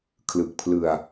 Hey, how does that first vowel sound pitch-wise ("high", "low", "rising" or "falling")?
low